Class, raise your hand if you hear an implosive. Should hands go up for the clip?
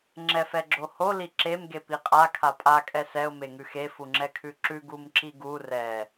no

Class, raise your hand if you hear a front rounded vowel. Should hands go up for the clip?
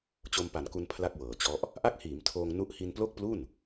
no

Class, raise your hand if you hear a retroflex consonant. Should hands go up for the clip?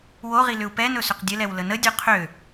no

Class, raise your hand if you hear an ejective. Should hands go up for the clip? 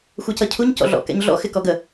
no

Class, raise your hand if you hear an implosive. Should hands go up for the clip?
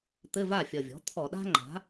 yes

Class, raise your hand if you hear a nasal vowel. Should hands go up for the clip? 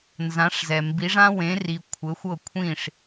yes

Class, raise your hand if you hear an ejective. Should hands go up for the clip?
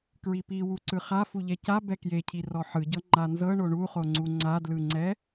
no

